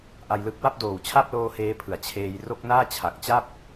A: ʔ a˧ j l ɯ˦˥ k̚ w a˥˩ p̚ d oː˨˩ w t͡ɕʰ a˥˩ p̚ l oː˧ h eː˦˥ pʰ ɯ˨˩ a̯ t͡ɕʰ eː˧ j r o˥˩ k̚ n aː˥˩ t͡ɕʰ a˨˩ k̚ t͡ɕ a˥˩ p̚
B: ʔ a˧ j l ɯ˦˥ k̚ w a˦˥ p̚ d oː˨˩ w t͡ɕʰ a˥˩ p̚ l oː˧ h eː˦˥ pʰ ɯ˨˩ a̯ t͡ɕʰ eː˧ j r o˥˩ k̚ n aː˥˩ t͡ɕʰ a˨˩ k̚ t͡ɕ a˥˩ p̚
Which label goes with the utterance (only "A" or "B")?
A